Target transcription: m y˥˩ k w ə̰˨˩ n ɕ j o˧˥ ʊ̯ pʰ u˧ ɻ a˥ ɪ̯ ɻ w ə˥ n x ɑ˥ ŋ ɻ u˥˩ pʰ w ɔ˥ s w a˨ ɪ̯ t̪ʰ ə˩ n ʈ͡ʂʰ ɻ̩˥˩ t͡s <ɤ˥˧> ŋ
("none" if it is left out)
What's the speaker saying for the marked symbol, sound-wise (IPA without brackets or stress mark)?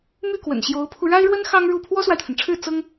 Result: ɤ˥